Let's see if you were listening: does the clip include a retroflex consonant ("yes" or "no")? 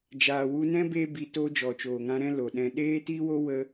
no